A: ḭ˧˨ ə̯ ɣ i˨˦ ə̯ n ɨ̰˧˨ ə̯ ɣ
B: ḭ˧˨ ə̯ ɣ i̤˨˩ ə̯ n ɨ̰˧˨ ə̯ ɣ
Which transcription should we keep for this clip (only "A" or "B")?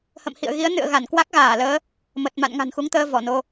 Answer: A